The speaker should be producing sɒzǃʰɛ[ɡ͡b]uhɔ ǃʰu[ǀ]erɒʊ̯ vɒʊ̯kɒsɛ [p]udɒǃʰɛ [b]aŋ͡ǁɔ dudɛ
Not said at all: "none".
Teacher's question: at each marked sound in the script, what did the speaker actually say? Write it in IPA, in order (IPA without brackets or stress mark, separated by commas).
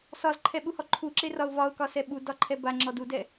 ɓ, ǁ, ɓ, b